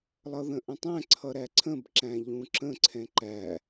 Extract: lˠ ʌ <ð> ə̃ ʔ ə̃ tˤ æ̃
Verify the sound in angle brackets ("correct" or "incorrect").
correct